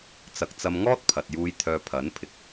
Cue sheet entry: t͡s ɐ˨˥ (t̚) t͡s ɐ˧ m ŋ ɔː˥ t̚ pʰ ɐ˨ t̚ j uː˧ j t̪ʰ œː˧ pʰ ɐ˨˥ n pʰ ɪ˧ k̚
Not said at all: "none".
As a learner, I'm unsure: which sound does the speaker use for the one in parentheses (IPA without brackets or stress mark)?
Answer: k̚